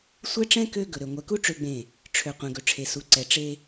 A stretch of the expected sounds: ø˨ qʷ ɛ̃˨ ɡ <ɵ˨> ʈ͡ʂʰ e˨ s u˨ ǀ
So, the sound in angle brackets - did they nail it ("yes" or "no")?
yes